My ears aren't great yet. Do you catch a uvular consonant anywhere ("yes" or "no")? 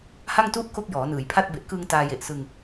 no